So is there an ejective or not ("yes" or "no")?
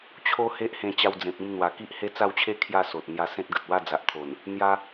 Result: no